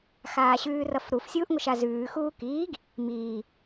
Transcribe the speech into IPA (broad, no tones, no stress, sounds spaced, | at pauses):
x aː ɕ ʉː r ʌ f ɾ u f sʲ uː ʔ ŋʷ ə ʃ a z ʉː x uː k iː ɡ | m iː